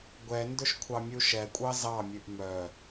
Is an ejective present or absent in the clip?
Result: present